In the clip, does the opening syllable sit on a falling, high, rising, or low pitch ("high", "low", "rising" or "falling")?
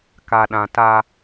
low